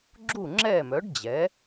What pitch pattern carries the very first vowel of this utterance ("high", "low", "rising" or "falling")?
falling